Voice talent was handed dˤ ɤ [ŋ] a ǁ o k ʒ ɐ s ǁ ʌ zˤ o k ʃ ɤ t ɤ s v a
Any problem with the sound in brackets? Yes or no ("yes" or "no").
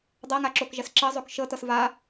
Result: no